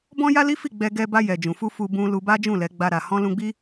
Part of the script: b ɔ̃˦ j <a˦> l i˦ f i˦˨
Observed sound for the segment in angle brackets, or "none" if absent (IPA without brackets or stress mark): a˦